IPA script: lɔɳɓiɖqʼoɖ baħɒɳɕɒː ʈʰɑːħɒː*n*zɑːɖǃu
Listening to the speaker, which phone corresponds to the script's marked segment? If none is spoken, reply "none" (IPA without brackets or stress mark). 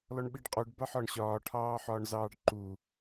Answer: ɳ